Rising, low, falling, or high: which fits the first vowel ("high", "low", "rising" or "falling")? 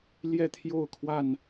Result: falling